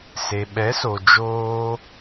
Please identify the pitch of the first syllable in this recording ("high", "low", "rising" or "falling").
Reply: low